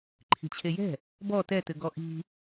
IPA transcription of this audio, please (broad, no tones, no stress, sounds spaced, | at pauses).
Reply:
ǃʰ i̤ t͡ɕʰ e j ɛ̤ | b ɔ t ɛ t ɘ ɡ ɔ ʔ i̤